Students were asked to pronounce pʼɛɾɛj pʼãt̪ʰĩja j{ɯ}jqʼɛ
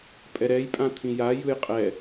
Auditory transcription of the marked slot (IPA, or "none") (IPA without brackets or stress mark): ɯ